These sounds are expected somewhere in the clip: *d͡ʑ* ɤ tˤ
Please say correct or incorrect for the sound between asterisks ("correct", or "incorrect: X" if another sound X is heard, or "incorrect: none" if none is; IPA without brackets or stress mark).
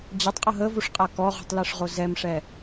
correct